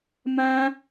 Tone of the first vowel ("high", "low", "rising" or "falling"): high